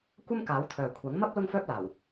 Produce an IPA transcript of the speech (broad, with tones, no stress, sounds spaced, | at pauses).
kʷ ɐ˥ m k aː˨˥ w t̪ʰ œː˨ kʷʰ ɐ˨˥ ŋ m ɐ˥ p̚ l ʊ˥ ŋ f œː˥ p̚ l aː˨˩ w